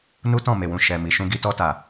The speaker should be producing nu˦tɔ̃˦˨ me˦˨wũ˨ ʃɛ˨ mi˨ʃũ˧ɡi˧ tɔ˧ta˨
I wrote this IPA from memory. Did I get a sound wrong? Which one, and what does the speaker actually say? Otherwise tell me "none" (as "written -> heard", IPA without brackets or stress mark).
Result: e˦˨ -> e˨